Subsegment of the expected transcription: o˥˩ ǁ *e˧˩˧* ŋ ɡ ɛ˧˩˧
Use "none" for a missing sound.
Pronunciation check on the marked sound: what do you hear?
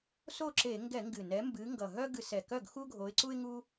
e˧˩˧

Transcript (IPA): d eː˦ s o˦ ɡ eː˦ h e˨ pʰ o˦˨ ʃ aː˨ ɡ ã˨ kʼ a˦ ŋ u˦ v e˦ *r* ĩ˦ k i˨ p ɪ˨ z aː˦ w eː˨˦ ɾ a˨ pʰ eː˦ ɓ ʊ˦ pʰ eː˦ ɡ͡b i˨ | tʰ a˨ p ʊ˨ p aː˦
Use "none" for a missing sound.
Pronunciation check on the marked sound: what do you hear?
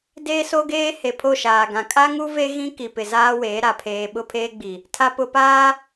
ɣ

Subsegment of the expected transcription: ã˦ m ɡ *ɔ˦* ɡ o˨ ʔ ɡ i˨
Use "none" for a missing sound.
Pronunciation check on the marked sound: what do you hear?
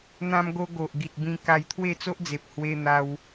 o˦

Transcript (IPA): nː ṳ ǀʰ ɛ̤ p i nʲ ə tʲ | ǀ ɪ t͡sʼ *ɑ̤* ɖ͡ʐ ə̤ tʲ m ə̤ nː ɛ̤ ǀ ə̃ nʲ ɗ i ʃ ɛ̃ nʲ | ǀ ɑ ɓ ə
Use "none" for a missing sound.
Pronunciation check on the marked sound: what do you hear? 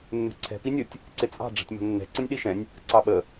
ɑ̤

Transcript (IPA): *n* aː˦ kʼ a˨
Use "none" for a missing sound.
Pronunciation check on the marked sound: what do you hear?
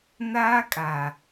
n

